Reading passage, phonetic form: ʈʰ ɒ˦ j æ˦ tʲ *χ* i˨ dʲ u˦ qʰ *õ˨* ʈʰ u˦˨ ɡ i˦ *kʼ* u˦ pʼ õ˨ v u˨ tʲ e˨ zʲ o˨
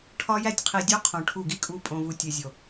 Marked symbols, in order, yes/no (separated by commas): no, yes, yes